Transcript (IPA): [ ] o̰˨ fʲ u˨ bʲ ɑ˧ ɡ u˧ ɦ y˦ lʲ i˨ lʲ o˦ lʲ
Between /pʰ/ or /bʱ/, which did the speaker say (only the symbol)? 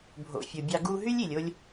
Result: bʱ